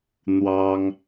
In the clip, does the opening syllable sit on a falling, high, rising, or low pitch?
high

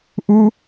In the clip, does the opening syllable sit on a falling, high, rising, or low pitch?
high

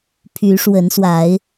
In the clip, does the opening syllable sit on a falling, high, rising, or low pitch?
rising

